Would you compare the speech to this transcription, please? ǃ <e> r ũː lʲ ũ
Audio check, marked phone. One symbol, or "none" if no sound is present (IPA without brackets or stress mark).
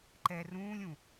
ɛ